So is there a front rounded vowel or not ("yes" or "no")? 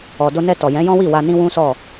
no